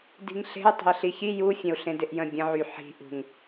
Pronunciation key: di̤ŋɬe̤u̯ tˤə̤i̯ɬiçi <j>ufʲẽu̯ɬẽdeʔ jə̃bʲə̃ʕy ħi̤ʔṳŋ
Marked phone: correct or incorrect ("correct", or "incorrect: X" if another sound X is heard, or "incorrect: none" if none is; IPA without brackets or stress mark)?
correct